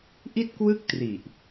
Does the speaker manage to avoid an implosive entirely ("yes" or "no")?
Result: yes